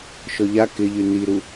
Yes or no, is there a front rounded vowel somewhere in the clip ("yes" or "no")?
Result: yes